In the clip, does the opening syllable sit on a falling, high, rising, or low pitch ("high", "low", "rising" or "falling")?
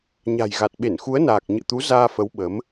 low